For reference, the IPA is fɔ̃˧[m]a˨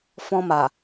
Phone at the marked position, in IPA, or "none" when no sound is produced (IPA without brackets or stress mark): m